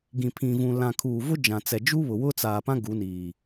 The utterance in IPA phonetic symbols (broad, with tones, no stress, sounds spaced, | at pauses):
ɡ ĩ˨ pʰ ĩ˨ v ũ˨ l ã˨ kʰ uː˨ v ʊ˦ d͡ʒ ã˨ t͡s ɛ˨ d͡ʒ u˦ β ʊ˨ w ʊ˦ t͡s aː˨ p ã˦ ɡ u˨˦ n iː˨